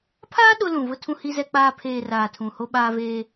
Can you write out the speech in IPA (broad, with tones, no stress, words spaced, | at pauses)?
pʰaː˦ ɗʊ˦lũ˨vʊ˦ tʰũ˦hi˦zɛ˦k͡paː˦ pʰeː˨ raː˨tʰũ˨ho˦ ɓaː˦veː˦